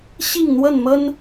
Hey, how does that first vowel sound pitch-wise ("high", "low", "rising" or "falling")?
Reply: falling